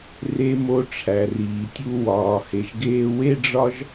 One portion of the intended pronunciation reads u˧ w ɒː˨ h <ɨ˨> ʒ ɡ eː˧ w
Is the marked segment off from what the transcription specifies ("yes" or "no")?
yes